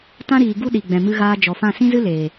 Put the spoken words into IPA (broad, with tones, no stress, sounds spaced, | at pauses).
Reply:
t ã˦ ɾ iː˨ ɡ u˦ ɗ i˨ ɡ͡b ɛ̃˨ m ɨ˧ ɣ aː˧ d͡ʒ ɔ˨ f ã˦˨ s ĩ˦ z ɨ˦ l eː˨